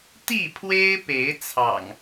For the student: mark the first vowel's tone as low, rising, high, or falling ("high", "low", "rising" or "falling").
falling